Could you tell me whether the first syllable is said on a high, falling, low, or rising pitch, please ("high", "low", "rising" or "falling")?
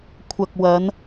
low